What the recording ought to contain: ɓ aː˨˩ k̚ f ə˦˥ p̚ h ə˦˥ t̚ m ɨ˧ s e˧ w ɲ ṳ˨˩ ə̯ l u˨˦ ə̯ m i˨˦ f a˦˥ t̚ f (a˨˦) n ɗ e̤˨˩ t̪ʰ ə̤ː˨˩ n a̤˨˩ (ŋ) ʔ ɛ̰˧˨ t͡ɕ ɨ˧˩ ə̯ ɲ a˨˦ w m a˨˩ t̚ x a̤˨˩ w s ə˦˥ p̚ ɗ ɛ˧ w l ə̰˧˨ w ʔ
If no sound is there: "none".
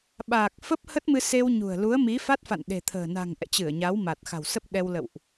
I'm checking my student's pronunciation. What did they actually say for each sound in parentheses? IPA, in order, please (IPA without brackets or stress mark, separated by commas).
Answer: a̰˧˨, ŋ